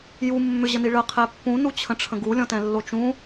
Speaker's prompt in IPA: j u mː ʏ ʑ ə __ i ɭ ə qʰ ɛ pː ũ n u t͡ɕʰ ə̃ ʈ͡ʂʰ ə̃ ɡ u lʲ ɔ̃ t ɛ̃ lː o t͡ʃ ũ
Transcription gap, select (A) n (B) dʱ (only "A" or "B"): A